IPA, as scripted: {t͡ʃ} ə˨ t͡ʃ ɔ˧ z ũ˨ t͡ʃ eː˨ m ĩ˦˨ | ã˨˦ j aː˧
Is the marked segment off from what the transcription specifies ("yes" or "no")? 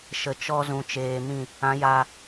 yes